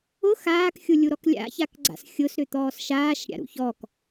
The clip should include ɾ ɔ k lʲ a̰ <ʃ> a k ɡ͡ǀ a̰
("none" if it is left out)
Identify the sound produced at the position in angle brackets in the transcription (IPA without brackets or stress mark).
ç